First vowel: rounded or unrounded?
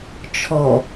rounded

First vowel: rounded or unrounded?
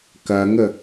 unrounded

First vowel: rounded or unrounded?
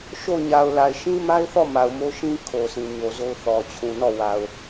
rounded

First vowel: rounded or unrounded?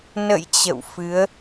unrounded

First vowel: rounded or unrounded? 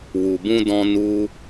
rounded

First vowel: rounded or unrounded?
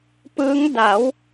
unrounded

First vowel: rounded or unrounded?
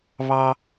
unrounded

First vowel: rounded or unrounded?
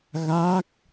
unrounded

